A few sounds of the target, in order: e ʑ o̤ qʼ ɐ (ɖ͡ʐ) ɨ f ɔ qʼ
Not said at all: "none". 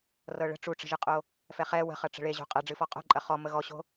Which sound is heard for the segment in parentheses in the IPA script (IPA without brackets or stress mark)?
ɖ͡ʐ